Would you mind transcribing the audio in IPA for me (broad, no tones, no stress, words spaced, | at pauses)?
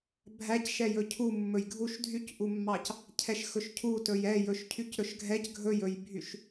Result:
bʱæcʃɛjɵ cʰu mːɵjɡʱuʃ dʱycʔumːɑc | cʰɛʃxɵʃcʰu tɵjɛ jɵʃcʰycɾɵʃɡʱɛc ɡʱɵjɵjbʱyʃ